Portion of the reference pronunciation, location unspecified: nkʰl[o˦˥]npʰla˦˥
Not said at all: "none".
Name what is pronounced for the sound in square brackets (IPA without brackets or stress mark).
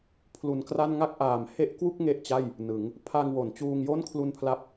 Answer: u˦˥